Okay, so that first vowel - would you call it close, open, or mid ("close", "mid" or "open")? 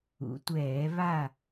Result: close